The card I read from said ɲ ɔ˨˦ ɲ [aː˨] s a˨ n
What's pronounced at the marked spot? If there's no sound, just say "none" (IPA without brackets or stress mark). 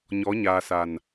aː˨